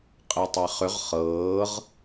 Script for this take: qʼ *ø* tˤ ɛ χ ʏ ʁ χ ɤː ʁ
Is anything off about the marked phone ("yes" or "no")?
yes